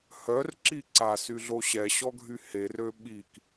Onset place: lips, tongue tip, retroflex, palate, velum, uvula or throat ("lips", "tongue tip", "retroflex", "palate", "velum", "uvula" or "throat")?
throat